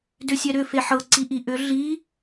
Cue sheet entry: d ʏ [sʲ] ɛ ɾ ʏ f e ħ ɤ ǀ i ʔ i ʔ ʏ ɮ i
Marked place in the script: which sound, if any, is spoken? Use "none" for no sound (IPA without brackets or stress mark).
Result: sʲ